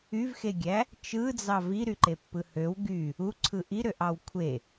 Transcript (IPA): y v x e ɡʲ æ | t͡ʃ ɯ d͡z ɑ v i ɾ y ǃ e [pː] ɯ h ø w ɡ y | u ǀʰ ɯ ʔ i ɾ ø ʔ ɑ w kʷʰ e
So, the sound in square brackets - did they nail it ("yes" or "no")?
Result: yes